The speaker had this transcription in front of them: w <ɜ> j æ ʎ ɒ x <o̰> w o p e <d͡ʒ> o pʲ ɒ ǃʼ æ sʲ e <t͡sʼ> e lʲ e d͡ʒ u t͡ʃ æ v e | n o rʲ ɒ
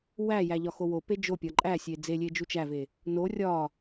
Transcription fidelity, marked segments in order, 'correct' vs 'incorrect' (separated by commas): incorrect, incorrect, correct, incorrect